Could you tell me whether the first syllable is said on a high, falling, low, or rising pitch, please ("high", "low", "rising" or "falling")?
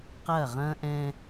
falling